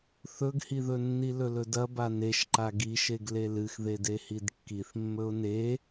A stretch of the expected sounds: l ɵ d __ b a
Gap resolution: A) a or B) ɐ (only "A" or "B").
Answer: B